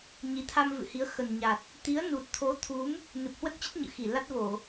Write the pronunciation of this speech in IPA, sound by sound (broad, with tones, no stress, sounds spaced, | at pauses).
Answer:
ɲ i˨˦ t̪ʰ a˧ m v ɨ̰˧˨ h i˨˦ ə̯ x ə˨˩ n ɲ a˨˩ t̚ | t̪ i˨˦ ə̯ n u˨˩ t̚ t̪ʰ o˨˦ t̪ʰ u˨˦ m | n ɨ˨˩ p̚ h w ə˦˥ t̚ t͡ɕ ə˦˥ t̚ ɲ ɨ̰˧˨ x i˧˩ l a˦˥ t̚ v o˧˩˨